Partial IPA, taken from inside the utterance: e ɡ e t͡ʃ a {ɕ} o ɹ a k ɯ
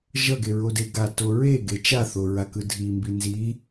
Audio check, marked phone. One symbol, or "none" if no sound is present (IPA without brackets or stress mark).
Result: θ